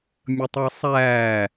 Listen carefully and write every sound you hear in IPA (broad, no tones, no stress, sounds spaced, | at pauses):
mʲ ə tˤ æ sˤ æː